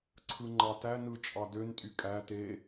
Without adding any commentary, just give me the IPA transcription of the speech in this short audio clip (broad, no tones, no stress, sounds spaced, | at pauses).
ǀʰ ɯ ŋ͡ǃ ɑ t æ n ɯ t͡ʃʼ ɑ d ø n tʼ y kʼ æ t e